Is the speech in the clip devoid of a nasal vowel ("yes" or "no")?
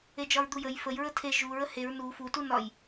yes